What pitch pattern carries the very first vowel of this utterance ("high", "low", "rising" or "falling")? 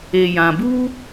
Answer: low